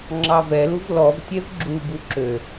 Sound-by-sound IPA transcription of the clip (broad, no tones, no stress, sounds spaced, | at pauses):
ŋ͡ǁ ɑ v ɛ l u v l ɔ v tʲ ɛ v ɡ͡ǁ u b u ǁ ø